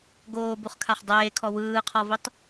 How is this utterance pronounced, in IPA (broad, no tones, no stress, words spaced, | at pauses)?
ɡoːbuχkʰaχ dˤeːkʰɔ wɯːqʰɔvitˤ